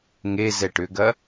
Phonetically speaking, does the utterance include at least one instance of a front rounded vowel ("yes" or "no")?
yes